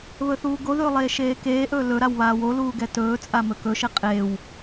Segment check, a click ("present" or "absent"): absent